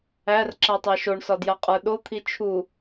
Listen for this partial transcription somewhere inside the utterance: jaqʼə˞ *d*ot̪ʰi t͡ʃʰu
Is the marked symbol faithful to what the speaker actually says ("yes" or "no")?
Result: no